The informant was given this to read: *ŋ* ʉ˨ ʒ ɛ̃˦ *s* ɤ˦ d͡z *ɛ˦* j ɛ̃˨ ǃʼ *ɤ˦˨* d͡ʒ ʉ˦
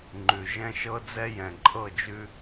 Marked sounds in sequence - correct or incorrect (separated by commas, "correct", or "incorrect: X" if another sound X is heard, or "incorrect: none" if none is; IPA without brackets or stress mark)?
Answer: incorrect: ŋ͡ǃ, incorrect: ʃ, correct, correct